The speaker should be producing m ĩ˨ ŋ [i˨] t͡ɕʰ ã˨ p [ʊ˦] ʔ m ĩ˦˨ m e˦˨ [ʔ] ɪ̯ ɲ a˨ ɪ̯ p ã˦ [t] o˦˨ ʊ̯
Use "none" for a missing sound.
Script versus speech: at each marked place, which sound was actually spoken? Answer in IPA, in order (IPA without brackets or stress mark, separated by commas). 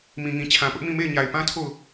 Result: ĩ˨, ʊ˦, none, tʰ